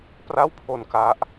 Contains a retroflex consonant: no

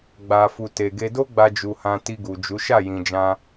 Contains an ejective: no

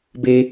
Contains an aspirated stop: no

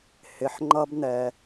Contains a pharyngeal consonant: yes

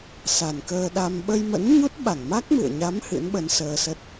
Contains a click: no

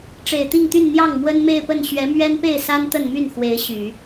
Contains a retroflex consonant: yes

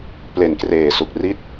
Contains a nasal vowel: no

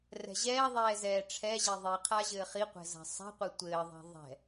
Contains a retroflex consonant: yes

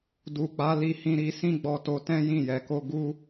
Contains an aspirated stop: no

